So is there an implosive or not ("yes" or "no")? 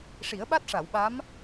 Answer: yes